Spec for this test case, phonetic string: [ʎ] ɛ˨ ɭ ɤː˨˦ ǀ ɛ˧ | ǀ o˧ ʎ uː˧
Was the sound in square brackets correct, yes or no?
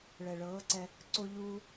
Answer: no